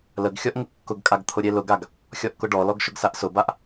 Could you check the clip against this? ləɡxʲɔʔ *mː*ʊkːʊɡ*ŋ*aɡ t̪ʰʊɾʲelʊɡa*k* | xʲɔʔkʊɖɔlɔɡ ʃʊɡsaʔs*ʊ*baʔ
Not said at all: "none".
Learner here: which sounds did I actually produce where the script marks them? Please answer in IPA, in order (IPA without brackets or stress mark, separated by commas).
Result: ŋ, kʼ, ɡ, ʊ